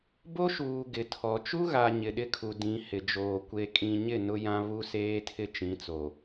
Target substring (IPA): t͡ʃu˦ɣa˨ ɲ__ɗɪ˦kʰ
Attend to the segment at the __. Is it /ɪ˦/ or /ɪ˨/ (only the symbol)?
ɪ˨